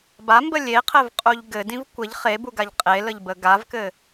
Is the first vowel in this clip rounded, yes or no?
no